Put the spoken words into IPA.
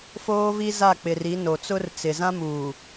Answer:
f oː˦ v i˦ z a˦˨ k͡p ɪ˨ r i˨˦ n o˨ t͡s ʊ˦ r t͡s ɪ˨ z ã˦ m uː˨

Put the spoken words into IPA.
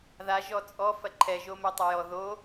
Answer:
ð a ʒ ɔ t͡sʼ ɔ f ɐ ǃʰ ɛ ʒ o m ɛ tˤ ɐ j ɔ ð o

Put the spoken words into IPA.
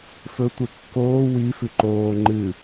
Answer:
f ɵ tʷ e kː oː w i f ʉ ǃ oː ŋ͡ǃ ɨ

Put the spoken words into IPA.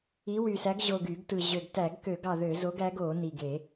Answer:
i˨˥ w y˨˩ s æ˨˥ ɡ ʑ o˨˩ ɡ y˧˩˧ ɡ t ɯ˨˩ ʑ ø˨˩ ɡ t æ˧˩˧ ɡ k ø˧˩˧ ɡ ɑ˨˩ ð ø˧˩˧ z o˨˥ ɡ æ˨˥ ɡ o˧˩˧ n i˨˩ ɡ e˧˩˧

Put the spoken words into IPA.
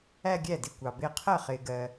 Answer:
æ˥˧ ɡʲ æ˥˩ d ɪ˥˩ kʷ ɑ˨ b ɪː˥˧ qʰ ɜ˥˩ χ ɪː˨ ɡ ɜ˨

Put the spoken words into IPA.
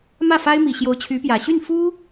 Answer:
m ä˥˩ f a˥ ɪ̯ m i˨˩ ɕ j o˧˥ ʊ̯ t͡ɕʰ y˧˥ p j ä˨˩ ɕ y˥˩ n f u˥

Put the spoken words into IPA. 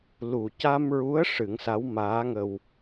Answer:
l u˨˩ c a˧ m ɹ u˧˥ ə̯ ʂ ɨ˨˩˦ ŋ s a˧˥ w m aː˧˥ ŋ ə˧ w

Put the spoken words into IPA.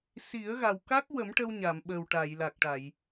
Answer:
s i˨˩˦ ə̯ ɣ a˨˩ w k a˦˥ k̚ w ə˨˩˦ m ʈ ə˧ w ɲ a˨˩˨ m ɓ ə˨˩ w ʈ a˨˩˨ j l a˨˩ k̚ ʈ a˨˩˨ j

